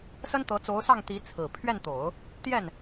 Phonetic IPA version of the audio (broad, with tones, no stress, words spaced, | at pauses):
sə˥nt̪ɤ˧˥ t͡so˧˥ʊ̯sɑ˥˩ŋt̪i˧˥ t͡sʰɹ̩˨˩ pʰɥɛ˥˩nt̪o˨˩˦ʊ̯ | t̪jɛ˥˩n